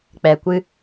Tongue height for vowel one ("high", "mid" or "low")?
mid